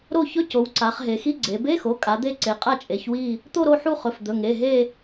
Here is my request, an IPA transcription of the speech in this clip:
ɾ o˦˨ ç ɵ˧˥˧ c o˩˧ w ǀ a˩˧ χ ɦ e˩˧ x i˧˥˧ ɡ͡ǀ e˩˧ b e˧˥˧ x o˩˧˩ kʼ a˩˧ d̪ e˦˨ ǀ e˩˧ qʼ a˦˨ t͡ʃʼ e˩˧ ç w i˦˨ | t̪ o˦˨ ɾ o˦˨ ħ u˦˨ χ ɵ˩˧˩ f d̪ ɵ˩˧˩ ŋ e˩˧˩ ɦ e˦˨

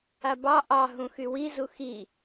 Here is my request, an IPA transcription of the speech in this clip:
a b ɑ ʔ ɑ ɦ ũ x y w i z u x i

